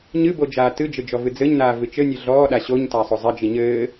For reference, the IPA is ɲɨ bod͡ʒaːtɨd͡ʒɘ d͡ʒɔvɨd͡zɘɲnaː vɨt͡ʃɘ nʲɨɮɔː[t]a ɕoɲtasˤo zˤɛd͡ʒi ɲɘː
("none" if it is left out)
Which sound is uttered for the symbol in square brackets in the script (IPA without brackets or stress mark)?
ɗ